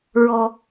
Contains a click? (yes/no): no